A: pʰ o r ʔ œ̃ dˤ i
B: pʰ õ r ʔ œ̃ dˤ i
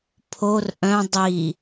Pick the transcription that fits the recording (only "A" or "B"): A